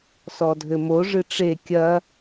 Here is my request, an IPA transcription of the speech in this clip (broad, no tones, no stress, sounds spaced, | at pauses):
s ɔ dʱ ɘ m o ʐ ɨ ʈ͡ʂ e kʲ ɐ